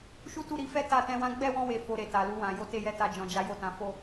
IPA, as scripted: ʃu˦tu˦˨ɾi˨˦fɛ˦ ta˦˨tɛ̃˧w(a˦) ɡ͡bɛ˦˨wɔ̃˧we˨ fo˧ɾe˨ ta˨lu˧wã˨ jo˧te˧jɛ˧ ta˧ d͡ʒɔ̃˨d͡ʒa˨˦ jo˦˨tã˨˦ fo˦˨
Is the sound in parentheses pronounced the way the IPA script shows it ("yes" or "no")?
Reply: no